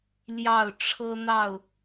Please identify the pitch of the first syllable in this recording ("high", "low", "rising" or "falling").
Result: falling